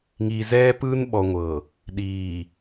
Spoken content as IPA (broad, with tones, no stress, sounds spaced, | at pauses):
ŋ i˨ z ɛː˦ p ɯː˦ n ɓ ɔ˨ ŋʷ ɤ˨ | ɗ iː˨